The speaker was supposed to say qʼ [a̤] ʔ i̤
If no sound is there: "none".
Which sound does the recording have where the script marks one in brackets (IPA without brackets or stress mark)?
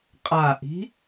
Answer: a